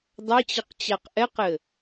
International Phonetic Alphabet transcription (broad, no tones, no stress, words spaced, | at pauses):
dˤat͡ɕɘq t͡ɕaqʔɛqɘ